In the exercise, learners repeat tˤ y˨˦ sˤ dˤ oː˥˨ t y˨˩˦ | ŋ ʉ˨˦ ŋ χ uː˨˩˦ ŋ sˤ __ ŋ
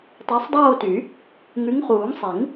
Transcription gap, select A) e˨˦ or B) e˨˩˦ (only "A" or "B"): B